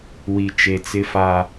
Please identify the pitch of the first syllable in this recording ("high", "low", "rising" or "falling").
low